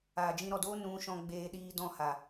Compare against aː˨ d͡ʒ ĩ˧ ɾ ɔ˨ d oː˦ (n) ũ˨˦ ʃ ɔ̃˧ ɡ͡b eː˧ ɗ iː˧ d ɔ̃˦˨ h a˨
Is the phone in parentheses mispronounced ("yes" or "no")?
no